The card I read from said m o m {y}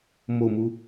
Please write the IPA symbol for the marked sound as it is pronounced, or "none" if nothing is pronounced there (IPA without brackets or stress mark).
u